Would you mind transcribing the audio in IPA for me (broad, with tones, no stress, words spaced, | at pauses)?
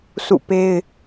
sṵ˦˨pe˦ɪ̯